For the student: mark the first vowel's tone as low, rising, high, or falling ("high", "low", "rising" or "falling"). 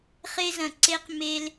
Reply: high